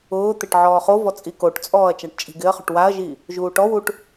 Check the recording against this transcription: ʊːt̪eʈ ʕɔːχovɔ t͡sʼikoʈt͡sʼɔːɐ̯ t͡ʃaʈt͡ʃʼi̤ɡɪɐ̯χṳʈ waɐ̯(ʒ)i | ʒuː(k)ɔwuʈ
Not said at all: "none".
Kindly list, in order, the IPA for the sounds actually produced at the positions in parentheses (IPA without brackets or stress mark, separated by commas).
ʒ, ʈ